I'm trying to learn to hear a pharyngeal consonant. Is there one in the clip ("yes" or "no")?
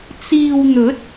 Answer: no